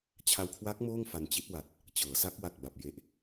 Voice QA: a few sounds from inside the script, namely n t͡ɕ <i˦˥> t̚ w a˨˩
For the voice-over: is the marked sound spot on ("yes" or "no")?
yes